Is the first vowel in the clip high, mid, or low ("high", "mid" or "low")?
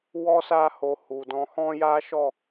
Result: mid